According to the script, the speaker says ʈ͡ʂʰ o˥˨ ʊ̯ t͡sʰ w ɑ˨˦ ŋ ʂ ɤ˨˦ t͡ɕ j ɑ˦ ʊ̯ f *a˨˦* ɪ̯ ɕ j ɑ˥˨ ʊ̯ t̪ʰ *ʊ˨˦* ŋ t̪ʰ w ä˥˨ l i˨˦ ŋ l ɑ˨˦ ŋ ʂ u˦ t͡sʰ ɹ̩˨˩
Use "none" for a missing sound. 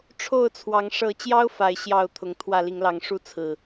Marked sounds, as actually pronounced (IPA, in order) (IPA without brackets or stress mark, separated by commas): a˨˦, ʊ˨˦